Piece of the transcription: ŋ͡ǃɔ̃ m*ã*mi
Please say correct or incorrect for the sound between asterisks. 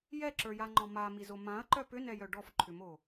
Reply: incorrect